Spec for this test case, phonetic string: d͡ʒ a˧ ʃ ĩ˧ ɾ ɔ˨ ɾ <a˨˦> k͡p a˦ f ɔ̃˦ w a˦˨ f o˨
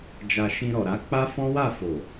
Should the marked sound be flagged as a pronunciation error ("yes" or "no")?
no